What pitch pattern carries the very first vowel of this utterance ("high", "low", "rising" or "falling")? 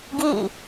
falling